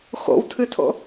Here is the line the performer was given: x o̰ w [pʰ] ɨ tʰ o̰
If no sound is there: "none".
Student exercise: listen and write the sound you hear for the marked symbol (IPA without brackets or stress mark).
tʰ